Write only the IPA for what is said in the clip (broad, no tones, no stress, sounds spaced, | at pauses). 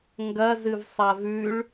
ŋ ɡ ɐ z ɨ v sˤ a v ʉ ɭ